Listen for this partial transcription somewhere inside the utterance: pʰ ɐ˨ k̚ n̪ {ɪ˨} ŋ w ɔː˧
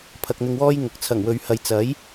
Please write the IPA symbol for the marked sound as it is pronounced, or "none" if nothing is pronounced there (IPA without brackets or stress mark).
ɪ˨